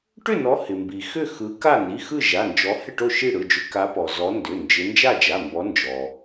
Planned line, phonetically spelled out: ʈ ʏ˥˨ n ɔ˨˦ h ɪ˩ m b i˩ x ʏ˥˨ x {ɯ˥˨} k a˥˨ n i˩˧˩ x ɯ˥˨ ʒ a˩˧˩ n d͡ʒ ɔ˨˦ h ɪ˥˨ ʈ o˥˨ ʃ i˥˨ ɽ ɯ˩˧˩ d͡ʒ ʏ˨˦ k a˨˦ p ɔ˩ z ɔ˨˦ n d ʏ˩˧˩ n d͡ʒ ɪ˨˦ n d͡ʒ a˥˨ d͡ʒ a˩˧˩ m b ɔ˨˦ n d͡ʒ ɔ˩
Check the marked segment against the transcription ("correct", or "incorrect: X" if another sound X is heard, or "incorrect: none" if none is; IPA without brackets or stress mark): incorrect: ɯ˨˦